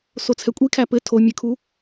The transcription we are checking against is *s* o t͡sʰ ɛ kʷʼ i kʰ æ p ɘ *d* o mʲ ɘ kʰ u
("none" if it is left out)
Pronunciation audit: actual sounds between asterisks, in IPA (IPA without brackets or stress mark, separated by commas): s, tʰ